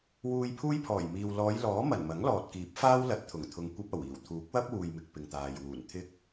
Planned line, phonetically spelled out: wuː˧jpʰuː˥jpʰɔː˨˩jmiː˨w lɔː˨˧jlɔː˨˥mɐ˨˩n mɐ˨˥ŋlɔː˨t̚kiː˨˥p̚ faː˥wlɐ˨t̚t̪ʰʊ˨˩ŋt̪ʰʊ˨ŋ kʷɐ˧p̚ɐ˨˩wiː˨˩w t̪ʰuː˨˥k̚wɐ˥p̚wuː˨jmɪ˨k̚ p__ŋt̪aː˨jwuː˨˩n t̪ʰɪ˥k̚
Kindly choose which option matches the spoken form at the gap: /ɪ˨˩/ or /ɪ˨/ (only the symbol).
ɪ˨